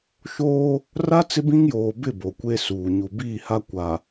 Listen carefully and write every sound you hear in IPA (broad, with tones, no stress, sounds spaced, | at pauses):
ʃ oː˦ | r a˦ t͡s ɪ˦ b ĩ˦ ŋ j oː˨ b ɪ˦˨ b o˨ kʷ e˦ s uː˨ ɲ u˨ b iː˦˨ h a˦ kʷ a˨